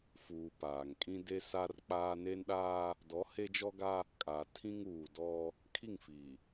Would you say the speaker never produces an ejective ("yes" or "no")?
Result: no